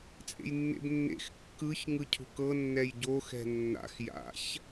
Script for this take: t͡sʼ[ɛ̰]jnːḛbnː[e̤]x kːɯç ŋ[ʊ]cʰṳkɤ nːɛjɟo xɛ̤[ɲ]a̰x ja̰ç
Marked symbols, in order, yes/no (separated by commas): no, no, no, no